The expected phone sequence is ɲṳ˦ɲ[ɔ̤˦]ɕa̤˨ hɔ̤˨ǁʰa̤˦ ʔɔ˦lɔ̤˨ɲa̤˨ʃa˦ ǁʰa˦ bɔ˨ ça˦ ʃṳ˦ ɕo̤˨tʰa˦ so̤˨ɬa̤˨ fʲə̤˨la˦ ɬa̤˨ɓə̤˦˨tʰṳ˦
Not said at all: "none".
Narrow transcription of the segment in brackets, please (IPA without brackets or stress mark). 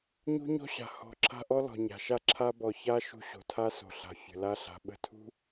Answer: ɔ̤˦